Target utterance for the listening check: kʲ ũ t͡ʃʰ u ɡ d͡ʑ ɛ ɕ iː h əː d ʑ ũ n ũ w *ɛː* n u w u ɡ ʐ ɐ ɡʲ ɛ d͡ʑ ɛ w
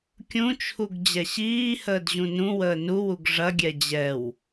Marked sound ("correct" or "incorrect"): incorrect